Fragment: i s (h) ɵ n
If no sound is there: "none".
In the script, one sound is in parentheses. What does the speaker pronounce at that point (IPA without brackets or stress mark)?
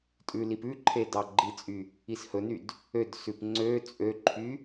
h